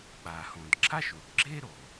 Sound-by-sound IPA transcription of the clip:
ɓ a˩ h õ˩ d ǁʰ a˥ ʃ u˩ ɖ ɡ͡ǁ e˥ ɾ o˩

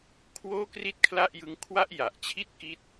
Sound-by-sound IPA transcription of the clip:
kʰ w oː˥˩ k r i˥˩ t̚ kʰ l a˥˩ ʔ j ɯ˦˥ ŋ kʰ w a˥˩ ʔ j a˨˩ ʔ t͡ɕʰ i˥˩ t̚ k i˥˩ t̚

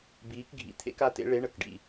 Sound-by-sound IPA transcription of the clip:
b iː˨˦ k ɡʱ ḭ˩˧˩ t̪ʰ ḛ˨˦ k a˩˧˩ t ḛ˨˦ ɭ e˨˦ ɳ ə˩˧˩ k ɖ ḭ˩˧˩

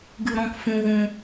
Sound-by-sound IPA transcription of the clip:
ɡ ɨ˧ ɾ ɔ̃˧ k f ũ˧ ɣ ũ˧

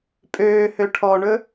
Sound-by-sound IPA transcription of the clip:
pʼ øː h ø ʈʰ ɔ ɳ ɵ

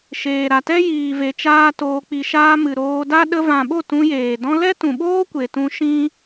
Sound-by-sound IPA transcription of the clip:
ʃ eː˨ ɾ a˨ t ɛ˦ j iː˨ v e˨ t͡ʃ aː˦ t oː˧ k͡p i˧ ʃ aː˦ m ɨ˨ ɾ oː˧ d a˦ ɗ ə˧ v ã˨ ɓ o˦˨ t ũ˧ j eː˨ d ɔ̃˧ l ɛ˦ t ũ˨ ɓ oː˦ kʷ e˨ t ũ˧ ʃ ĩ˦

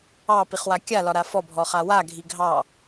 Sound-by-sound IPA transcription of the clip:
ɑ p i χ w a kʲ a l ɒ ɾ a f ɔ bʱ ɔ χ a w a ɡʱ i ɡʱ ɑ

